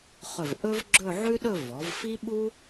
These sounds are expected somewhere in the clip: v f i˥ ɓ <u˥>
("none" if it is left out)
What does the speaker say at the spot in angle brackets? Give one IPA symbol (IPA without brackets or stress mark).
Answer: u˥